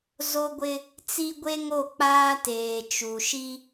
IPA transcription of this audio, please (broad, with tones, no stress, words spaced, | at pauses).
zo˦ɡʷɪ˦ | t͡si˦ ɡʷe˦ŋo˦˨ k͡paː˦teː˨ t͡ʃu˨ʃi˦